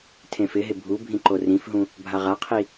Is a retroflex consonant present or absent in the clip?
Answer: absent